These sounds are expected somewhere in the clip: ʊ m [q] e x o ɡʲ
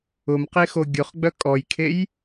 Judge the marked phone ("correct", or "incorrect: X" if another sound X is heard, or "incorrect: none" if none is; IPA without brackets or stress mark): correct